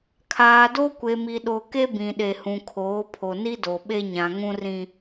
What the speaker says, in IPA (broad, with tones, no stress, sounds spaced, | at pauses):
kʰ aː˨ d o˦ kʷ e˨ m i˨ ɗ o˨ k e˦ b ĩ˨ ɗ e˨ h ũ˨ kʰ oː˨˦ pʰ o˨ n i˦ d o˨ ɓ e˦ ɲ ã˨ ŋ ũ˦ r ĩ˦